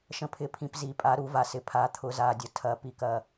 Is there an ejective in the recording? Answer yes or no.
yes